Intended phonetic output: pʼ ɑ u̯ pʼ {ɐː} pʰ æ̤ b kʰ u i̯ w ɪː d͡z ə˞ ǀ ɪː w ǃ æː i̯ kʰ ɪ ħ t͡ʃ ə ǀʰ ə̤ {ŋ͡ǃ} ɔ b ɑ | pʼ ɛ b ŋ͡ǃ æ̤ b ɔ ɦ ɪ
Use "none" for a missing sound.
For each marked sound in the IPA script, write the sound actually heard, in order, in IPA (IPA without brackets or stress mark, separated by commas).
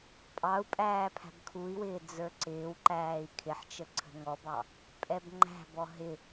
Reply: æː, ŋ